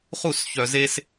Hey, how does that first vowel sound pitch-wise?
falling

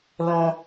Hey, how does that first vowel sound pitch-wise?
high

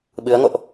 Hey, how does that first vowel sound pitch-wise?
rising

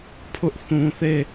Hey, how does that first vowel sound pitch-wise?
high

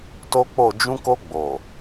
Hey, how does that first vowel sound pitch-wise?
high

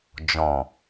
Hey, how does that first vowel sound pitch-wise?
low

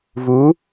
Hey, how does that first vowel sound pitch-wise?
rising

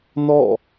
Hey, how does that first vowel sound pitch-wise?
falling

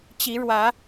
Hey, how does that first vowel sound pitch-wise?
rising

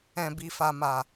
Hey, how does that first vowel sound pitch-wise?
low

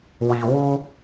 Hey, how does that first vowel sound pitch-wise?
low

